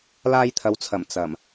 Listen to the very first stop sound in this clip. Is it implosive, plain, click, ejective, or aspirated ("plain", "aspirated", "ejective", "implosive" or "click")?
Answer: aspirated